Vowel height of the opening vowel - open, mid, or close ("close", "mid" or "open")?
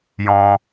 mid